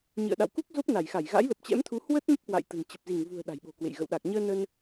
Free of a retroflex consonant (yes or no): yes